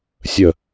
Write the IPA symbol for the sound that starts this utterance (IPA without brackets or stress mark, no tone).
sʲ